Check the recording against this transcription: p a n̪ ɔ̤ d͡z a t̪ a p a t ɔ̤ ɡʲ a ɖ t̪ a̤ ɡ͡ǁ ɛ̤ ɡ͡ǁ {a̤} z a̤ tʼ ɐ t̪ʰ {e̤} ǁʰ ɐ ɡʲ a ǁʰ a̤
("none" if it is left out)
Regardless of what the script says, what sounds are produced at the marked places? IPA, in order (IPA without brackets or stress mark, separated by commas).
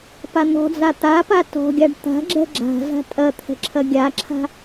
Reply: a̤, ɛ̤